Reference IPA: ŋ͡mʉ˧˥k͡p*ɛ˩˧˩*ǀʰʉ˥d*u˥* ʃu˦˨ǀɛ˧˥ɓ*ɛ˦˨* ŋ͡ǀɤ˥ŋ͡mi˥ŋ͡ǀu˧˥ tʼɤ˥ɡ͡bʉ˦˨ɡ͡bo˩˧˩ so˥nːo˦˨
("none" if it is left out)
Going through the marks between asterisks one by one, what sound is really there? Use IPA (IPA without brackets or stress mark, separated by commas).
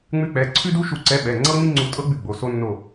ɛ˩˧˩, u˥, ɛ˩˧˩